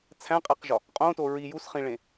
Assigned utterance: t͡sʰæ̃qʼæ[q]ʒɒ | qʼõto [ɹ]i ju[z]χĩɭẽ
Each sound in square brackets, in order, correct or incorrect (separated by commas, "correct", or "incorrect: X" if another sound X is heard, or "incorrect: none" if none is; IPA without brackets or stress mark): correct, correct, incorrect: s